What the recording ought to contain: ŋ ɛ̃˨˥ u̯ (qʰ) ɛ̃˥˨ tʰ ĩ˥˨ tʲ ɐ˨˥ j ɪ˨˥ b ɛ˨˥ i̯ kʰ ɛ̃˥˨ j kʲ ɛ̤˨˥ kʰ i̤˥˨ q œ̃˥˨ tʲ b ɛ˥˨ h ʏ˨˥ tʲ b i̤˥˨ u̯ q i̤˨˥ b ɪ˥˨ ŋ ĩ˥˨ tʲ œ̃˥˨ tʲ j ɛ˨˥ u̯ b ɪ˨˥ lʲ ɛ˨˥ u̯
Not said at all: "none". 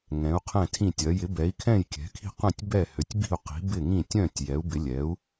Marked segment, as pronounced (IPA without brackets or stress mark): qʰ